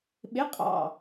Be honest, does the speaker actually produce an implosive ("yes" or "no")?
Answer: yes